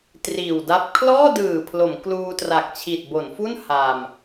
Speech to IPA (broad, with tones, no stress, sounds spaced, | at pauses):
t r iː˨˩ w d a˦˥ p̚ kʰ l ɔː˥˩ d ɯː˨˩ pʰ l o˩˦ m k l uː˧ t r a˨˩ k̚ t͡ɕʰ i˨˩ t̚ b o˩˦ n f u˥˩ n h a˧ m